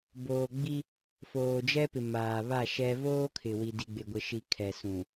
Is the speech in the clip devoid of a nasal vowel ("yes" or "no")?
no